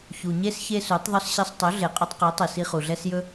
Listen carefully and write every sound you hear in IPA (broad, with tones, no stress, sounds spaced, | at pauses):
ç u˨ ɲ e˦ s ç e˦ s u˨˦ tˤ ðˤ ɵ˦ s ɕ ɛ˧ sˤ tˤ ɵ˨˦ ɮ e˨ qʼ ɵ˧ tˤ q i˨˦ tˤ i˨ s i˧ χ u˨ ɮ ɛ˦ s j ɵ˦